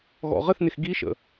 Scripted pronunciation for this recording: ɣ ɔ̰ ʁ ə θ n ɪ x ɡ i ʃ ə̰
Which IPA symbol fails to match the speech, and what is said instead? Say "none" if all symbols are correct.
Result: none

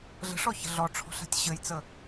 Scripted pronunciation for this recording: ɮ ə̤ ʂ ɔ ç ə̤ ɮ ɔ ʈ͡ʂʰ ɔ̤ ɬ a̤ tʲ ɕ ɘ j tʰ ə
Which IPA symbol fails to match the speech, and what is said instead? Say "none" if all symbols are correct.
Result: tʰ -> t͡s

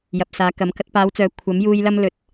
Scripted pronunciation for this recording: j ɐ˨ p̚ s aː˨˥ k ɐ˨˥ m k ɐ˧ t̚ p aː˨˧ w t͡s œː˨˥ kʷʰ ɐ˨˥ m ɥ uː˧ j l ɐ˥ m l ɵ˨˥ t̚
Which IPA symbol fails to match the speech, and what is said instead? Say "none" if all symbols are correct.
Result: ɥ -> j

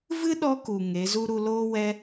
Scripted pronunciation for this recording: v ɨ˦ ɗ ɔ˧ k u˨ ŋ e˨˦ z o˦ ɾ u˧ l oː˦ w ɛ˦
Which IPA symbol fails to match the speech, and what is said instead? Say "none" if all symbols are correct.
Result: o˦ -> u˦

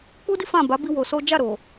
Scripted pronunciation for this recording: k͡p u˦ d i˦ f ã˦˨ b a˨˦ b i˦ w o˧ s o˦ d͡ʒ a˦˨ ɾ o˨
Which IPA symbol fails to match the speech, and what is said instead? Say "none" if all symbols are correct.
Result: none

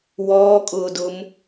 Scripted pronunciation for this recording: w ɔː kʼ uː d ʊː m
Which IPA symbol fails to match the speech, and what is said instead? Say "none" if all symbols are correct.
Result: uː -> ʊː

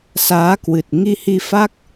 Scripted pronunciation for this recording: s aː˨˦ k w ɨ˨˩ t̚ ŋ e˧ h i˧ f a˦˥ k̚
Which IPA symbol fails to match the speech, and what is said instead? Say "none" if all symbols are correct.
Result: e˧ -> i˧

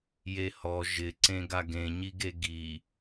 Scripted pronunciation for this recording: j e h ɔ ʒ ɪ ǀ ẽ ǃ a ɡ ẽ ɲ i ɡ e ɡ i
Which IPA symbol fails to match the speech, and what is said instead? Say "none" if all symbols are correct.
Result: ǃ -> ɡ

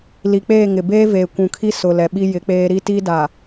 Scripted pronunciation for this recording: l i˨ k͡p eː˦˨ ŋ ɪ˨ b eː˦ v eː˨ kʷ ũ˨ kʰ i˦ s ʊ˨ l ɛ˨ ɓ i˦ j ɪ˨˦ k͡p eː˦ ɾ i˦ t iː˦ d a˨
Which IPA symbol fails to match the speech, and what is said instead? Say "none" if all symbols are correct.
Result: none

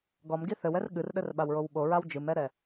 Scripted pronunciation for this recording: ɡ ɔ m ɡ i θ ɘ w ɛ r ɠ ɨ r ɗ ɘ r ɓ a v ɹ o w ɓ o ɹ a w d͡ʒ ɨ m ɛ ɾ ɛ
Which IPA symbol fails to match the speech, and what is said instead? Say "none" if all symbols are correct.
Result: v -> w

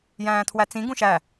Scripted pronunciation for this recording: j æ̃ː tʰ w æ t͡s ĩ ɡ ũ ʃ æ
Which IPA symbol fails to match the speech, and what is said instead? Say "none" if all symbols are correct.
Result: none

